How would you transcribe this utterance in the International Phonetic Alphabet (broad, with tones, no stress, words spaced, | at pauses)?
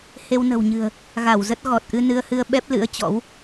he˧wnə̤˨˩wɲɨ̤˨˩ə̯ | ɣa˧˩wzə˦˥t̚ ɣɔ˨˩t̚ʔɨ˧nɨ˧ə̯hɨ˧ə̯ ɓɛ˦˥p̚lɨ̰˧˥ə̯ t͡ɕɔ̰˧˥w